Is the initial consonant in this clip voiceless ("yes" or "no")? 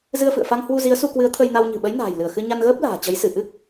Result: no